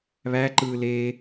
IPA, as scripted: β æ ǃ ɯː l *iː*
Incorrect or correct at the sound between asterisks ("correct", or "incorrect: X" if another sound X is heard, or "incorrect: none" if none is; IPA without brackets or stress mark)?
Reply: incorrect: eː